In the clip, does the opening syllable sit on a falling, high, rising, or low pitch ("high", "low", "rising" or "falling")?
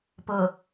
low